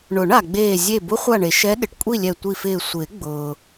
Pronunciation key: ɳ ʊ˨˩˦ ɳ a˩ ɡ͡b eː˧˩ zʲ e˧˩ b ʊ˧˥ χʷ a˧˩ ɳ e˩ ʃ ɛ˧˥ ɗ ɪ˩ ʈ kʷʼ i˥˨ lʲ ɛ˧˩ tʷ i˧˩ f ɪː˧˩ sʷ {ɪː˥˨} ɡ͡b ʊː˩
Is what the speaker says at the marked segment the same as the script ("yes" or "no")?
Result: no